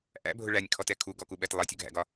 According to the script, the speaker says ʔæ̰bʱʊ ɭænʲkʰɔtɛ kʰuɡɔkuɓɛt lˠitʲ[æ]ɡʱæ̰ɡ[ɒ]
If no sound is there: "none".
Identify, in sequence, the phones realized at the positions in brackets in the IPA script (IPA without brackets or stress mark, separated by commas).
ə, ɒ